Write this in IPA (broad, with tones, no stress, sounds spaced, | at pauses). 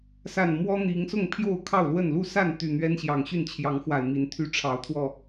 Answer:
s a˨˩ n m w ɔ˦ n̪ i˨˦ ŋ s ʊ˥˨ ŋ pʰ j o˥˨ ʊ̯ kʰ ɑ˥˨ ʊ̯ l w ə˥˨ n l u˥˨ s a˥˨ n t̪ y˨˩ n̪ ɥ ɛ˦ n ɕ j ɑ˨˩ ŋ ɕ y˥˨ n t͡ɕʰ j ɑ˨˦ ŋ x w a˨˩ ɪ̯ m i˨˦ n t̪ʰ y˦ ʈ͡ʂʰ ɑ˨˦ ʊ̯ t̪ʰ w ɔ˥˨